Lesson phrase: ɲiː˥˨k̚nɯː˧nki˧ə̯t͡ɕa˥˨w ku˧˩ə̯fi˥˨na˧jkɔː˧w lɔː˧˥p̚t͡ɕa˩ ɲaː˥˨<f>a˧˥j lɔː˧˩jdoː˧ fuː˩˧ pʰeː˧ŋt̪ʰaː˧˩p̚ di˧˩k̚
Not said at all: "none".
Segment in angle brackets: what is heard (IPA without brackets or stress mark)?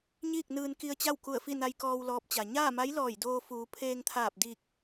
m